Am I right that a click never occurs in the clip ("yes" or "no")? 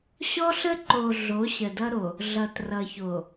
no